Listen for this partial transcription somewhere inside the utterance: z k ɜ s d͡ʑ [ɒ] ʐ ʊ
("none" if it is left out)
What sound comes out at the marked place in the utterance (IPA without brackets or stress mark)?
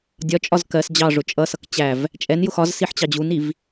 ɑ